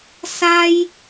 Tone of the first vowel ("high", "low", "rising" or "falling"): high